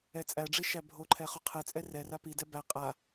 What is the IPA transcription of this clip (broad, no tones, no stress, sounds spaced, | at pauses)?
ɛ t͡sʼ æ ɖ͡ʐ i ʃ æ bʱ o ǃʰ ɛ χ o qʰ ɛ t͡sʼ ɛ r ɛ r a p i d ɛ b æ qʼ a